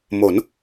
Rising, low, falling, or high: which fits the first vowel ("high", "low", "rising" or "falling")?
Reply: rising